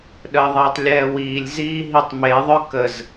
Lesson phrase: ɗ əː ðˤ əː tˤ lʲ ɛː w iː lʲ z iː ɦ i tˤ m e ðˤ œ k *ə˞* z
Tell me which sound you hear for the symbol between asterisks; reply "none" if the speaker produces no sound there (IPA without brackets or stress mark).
ə